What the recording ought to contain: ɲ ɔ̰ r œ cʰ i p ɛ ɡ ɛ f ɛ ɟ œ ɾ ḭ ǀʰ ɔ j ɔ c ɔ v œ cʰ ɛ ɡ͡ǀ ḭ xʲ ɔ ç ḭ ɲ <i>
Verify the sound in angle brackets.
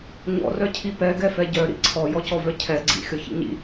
incorrect: ḭ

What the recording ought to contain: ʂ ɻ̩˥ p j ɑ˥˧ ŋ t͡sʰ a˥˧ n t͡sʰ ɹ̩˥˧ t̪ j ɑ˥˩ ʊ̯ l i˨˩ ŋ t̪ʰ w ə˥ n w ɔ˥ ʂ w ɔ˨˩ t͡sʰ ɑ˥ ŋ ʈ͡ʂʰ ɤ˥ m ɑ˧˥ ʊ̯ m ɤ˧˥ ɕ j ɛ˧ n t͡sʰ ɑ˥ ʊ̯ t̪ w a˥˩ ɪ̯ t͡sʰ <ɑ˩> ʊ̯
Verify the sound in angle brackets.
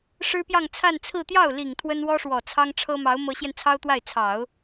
incorrect: ɑ˨˩˦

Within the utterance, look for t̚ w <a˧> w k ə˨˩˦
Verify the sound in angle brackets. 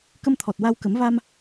correct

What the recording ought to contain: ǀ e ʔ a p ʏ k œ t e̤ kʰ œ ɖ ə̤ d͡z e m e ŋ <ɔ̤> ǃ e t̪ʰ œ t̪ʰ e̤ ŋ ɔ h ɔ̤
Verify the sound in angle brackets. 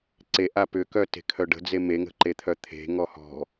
incorrect: ə̤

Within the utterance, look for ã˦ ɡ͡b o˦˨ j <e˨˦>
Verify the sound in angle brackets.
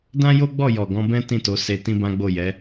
incorrect: ɛ˨˦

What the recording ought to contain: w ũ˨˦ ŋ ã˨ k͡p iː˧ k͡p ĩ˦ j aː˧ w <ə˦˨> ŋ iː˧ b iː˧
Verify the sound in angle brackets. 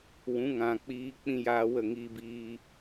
correct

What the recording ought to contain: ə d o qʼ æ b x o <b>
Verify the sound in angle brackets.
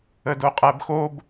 correct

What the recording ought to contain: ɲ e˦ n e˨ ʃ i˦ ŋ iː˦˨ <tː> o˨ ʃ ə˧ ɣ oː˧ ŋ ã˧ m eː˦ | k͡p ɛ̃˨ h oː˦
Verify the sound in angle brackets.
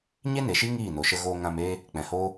incorrect: n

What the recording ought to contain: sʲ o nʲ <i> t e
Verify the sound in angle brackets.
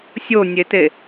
incorrect: e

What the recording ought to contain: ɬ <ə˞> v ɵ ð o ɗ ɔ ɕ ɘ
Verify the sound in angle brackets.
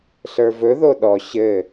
correct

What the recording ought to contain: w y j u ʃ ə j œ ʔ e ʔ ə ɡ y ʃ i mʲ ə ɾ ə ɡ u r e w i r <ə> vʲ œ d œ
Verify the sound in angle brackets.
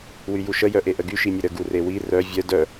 incorrect: œ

